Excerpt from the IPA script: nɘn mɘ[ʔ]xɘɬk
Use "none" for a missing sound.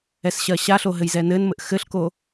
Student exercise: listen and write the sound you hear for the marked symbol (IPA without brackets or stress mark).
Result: ʔ